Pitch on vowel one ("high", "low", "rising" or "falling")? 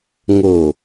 low